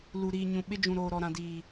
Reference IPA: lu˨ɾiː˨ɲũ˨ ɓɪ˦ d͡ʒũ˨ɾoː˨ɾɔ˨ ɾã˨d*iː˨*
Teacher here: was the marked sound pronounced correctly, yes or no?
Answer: yes